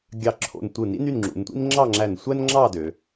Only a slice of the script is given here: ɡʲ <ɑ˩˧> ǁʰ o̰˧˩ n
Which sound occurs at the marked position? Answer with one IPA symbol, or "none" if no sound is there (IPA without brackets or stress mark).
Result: ɑ˧˩